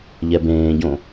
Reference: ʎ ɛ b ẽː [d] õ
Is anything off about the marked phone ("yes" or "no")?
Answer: yes